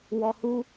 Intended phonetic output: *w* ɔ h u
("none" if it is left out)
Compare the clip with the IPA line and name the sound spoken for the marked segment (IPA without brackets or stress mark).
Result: w